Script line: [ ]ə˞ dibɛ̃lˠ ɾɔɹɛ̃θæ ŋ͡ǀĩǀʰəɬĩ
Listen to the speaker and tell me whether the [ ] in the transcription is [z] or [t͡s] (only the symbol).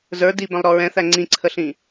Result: z